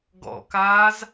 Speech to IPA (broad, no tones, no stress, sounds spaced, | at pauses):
ɡ ɔ̰ k aː z